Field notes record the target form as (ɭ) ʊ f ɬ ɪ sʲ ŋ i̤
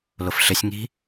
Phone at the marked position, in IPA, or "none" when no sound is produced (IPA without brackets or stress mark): l